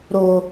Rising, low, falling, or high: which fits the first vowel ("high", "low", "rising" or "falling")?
low